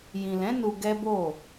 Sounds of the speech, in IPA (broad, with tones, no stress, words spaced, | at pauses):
jĩ˨lɛ̃˨˦ nu˧ɡɛ˦bo˦˨